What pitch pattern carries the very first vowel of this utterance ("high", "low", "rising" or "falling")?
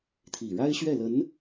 low